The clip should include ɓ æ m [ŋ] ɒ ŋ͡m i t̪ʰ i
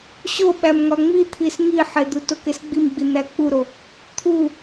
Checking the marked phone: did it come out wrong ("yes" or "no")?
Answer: no